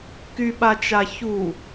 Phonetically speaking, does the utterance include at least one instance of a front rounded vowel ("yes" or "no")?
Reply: yes